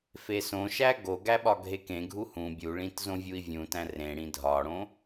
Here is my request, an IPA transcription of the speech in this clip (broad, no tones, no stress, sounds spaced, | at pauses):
f e s õ ʃ æ ɡ o ɡ æ ɓ ɒ ɡʱ e k ẽ ɡʱ u h ũ bʲ u ɭ ĩ t z õ vʲ u i̯ vʲ ũ t æ̃ r ẽ ɽ ĩ dʱ ɒ ɽ õ